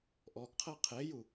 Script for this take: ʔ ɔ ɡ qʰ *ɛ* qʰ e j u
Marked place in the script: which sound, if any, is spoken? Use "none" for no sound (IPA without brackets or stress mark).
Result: ɜ